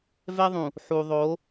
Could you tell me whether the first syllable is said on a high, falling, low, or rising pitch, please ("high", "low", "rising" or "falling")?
high